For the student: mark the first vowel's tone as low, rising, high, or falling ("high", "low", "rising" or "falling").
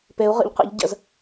rising